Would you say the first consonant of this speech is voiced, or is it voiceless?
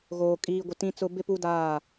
voiced